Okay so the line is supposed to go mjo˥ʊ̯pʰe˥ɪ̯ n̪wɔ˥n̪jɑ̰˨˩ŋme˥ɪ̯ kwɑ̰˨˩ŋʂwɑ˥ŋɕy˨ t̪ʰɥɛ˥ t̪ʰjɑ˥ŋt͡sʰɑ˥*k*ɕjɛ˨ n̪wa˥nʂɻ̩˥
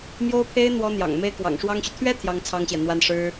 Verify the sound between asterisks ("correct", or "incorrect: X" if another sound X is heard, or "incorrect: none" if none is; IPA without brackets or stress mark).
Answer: incorrect: ŋ